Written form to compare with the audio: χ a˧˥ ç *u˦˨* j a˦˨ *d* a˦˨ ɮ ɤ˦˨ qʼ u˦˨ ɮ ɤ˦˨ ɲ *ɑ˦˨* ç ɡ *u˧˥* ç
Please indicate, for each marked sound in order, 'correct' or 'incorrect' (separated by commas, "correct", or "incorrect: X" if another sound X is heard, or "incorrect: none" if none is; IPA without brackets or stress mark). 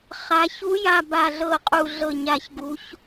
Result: incorrect: u˧˥, incorrect: b, incorrect: a˦˨, correct